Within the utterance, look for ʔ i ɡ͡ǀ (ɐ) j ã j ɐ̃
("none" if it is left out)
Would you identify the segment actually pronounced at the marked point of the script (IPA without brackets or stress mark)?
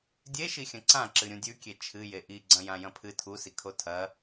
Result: ɐ̃